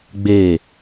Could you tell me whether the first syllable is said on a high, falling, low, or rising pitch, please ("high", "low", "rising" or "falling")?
falling